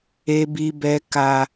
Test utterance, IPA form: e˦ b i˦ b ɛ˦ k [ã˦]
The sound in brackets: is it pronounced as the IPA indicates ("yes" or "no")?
no